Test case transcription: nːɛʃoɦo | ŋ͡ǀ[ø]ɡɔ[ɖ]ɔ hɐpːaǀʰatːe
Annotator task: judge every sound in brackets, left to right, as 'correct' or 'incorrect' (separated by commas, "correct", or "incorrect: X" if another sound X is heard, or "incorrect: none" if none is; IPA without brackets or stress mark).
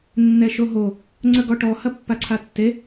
incorrect: ə, incorrect: ʈ